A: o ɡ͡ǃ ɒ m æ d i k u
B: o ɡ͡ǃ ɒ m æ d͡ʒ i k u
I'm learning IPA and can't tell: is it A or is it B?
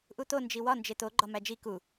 B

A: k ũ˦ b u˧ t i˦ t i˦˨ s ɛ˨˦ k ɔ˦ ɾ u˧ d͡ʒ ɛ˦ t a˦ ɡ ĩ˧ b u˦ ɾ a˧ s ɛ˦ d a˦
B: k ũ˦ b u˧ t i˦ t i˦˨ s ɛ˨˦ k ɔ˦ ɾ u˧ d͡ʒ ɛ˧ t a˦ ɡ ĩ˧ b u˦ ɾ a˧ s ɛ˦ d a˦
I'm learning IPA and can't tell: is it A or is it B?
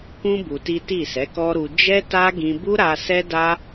A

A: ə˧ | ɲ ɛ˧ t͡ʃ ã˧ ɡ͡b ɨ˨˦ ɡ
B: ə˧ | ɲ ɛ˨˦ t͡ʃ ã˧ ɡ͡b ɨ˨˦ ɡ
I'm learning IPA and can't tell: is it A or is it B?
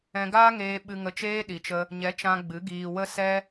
B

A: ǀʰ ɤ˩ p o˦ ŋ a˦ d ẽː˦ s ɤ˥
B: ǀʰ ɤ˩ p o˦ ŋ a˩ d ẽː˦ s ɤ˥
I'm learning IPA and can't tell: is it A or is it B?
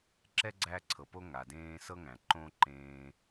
B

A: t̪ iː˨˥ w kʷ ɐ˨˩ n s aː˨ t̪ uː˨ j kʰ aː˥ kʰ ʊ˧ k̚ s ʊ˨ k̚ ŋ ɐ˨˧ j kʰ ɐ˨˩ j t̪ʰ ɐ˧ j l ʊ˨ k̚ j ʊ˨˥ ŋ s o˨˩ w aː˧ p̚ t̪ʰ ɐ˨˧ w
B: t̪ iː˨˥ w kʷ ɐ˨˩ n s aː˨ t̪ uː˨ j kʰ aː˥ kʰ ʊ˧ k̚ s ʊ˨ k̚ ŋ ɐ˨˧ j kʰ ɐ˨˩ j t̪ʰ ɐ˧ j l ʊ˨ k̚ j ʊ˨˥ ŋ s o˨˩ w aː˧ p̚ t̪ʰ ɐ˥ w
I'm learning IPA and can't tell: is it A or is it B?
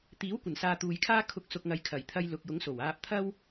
B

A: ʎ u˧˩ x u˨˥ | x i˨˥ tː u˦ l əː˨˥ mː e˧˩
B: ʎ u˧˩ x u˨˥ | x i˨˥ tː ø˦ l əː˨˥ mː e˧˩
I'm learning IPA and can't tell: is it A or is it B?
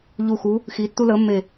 A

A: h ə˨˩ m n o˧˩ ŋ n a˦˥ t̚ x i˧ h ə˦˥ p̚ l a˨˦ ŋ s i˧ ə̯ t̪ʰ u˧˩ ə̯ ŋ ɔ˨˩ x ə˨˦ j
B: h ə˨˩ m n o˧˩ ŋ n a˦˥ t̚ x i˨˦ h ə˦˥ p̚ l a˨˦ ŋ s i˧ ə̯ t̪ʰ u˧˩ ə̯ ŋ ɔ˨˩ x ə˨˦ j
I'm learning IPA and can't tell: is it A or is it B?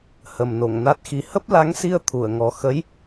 B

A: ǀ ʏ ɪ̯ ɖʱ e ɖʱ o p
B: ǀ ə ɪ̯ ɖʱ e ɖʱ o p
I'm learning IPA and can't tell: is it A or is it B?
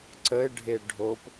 B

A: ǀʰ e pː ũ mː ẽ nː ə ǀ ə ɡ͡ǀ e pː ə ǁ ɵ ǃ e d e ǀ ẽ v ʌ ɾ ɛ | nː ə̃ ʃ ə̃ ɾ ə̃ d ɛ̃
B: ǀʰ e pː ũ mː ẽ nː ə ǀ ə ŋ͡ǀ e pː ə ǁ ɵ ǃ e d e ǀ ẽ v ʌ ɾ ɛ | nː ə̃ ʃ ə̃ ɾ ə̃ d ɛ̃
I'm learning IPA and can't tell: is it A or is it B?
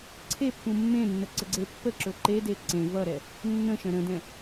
A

